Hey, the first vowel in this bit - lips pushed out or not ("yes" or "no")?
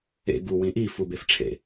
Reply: no